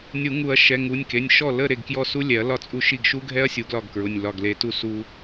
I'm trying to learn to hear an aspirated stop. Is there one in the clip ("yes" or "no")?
no